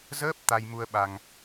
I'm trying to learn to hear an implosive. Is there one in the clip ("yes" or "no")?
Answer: yes